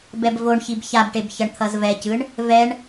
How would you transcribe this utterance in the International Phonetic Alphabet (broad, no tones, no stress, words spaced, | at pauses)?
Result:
bɛbvoɳçib çabʈeb çʌɳt̪ʰʌzvɛcɯɳ | vɛɳ